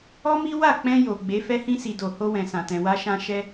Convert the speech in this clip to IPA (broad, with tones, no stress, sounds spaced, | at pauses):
ɔ˦ m i˦ w a˦˨ k͡p ɛ̃˧ j o˨ ɡ͡b e˨˦ f ɛ˧ h ĩ˧ s i˨ d o˨ h o˧ w ɛ̃˨ s ã˨ t ɛ̃˨ w a˧ ʃ ã˧ ʃ ɛ˧